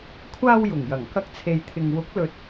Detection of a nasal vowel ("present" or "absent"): absent